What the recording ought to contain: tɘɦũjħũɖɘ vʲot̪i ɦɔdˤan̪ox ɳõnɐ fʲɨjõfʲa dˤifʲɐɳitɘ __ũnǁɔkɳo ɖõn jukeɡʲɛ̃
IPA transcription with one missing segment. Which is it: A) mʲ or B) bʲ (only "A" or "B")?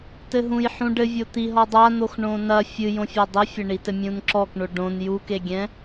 A